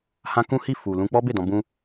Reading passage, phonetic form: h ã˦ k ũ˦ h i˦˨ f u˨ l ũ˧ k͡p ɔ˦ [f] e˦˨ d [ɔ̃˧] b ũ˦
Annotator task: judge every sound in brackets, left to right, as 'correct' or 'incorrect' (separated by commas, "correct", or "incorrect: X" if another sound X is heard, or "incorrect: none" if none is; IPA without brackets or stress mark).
incorrect: b, correct